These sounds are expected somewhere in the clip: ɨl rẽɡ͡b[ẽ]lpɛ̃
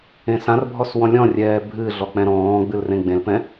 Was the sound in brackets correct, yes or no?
yes